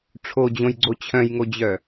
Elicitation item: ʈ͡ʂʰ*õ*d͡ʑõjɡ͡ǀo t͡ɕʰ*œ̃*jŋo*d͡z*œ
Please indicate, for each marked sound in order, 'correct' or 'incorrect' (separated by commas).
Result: incorrect, correct, incorrect